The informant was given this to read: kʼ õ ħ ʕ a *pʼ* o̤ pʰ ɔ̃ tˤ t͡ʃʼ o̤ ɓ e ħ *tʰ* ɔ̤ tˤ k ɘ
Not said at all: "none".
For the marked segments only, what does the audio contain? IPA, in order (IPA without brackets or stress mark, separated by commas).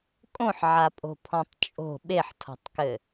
pʼ, tʰ